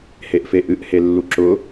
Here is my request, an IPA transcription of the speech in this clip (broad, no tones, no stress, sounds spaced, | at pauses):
h e ʔ f e ʔ ɨ ʔ h e lː u ǁ ʊ